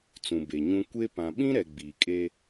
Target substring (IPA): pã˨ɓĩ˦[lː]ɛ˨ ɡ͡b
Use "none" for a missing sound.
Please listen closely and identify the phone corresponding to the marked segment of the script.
ɾ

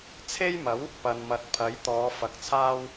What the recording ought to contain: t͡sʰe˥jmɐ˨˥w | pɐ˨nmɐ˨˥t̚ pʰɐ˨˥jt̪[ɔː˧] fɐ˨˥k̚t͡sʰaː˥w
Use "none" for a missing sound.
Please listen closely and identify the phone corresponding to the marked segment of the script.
ɔː˨˧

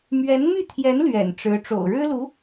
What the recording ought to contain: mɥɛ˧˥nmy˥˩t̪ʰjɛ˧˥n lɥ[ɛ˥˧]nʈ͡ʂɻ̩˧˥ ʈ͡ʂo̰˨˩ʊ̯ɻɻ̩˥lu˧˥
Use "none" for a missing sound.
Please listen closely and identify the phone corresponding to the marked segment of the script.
ɛ̰˨˩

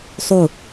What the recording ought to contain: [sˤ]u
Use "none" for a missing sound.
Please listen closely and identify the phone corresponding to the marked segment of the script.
sˤ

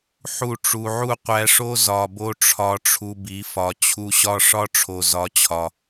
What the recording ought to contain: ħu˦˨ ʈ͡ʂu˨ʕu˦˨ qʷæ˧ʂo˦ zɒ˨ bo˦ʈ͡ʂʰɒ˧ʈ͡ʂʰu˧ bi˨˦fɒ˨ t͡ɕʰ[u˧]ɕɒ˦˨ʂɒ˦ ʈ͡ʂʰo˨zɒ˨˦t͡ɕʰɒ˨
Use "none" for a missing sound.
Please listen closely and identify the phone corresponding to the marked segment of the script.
u˨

